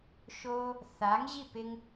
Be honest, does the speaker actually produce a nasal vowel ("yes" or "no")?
no